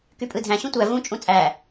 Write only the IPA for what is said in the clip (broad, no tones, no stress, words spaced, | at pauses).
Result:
kypʼɯdʱæ̃ ɕũtʷæ vũ t͡ʃʼũt͡sʼæ